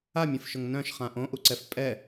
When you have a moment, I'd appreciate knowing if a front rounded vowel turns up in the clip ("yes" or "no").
yes